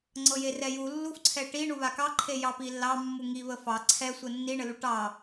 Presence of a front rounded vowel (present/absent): absent